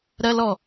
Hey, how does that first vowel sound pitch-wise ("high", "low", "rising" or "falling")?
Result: high